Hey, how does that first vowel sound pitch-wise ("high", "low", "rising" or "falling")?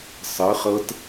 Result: rising